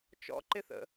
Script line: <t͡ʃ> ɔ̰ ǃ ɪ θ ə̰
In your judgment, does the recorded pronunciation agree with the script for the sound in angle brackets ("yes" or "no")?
yes